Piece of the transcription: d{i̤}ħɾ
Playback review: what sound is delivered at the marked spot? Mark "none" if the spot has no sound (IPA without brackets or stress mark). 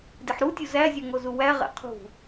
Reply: i